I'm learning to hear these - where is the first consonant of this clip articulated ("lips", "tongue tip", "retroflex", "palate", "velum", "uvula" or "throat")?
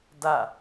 tongue tip